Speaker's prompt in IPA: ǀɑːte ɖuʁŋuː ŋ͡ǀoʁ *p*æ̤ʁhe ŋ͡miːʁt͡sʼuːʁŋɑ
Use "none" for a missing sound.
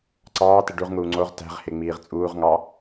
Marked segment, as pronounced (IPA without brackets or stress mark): t